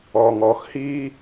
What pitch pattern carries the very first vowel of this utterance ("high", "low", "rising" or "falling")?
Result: low